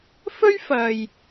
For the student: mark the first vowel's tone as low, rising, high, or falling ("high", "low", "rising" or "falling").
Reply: high